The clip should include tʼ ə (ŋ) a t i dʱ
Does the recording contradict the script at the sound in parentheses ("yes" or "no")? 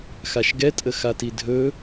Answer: yes